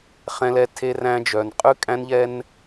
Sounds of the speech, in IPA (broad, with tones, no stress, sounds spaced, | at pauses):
χ ɛ̃˨ l ɛ˨ tʰ e˦ r æ̃˦ d͡ʒ œ˨ n qʼ ʉ˦ kʼ æ̃˦ n ʎ ɛ˦ n